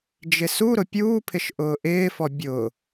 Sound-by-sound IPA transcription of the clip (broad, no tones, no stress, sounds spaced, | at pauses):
d͡ʒ ɪ s u ɾ ʊ pʲ uː pʰ ɪ ʃ ʔ ʊː ʔ ɪː f ɔ bʲ ʊː